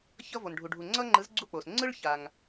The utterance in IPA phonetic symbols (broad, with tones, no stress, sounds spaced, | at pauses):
ç ʌ˦ v o˨ n ɖʱ u˨ ɖʱ u˨ ŋ͡ǀ ʌ˦ ŋ͡ǃ ɯ˨˥ z ɡ͡ǀ u˥˨ k͡p o˨ s ŋ͡ǀ ɯ˦ ɭ ç a˨ ŋ